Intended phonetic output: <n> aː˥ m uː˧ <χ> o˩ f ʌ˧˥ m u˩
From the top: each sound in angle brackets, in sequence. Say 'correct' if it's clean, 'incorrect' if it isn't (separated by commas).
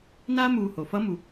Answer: correct, incorrect